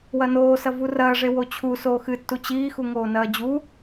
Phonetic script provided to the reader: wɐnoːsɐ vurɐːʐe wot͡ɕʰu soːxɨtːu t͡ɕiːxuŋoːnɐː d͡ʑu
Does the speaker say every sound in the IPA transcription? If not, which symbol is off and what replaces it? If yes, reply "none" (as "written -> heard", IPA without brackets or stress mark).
none